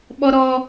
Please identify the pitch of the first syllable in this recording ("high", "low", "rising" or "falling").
high